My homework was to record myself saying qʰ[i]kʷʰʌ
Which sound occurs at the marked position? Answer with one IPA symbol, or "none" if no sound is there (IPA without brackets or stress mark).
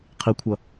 i